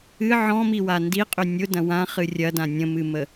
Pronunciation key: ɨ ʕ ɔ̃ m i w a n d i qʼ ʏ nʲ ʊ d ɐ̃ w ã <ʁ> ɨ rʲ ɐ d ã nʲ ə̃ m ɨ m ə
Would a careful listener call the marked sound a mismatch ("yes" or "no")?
yes